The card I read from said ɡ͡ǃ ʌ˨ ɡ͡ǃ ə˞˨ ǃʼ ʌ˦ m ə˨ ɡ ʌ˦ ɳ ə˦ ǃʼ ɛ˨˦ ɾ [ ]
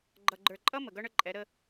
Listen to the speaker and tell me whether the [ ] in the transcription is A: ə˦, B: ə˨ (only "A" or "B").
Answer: A